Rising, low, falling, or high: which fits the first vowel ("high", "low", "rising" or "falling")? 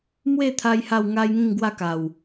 falling